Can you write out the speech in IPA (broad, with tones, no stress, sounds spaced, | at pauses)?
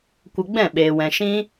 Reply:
kʷ ə˧ ɡ͡b ɛ̃˦˨ ɓ eː˨ w ɛ̃˨ ʃ ĩ˦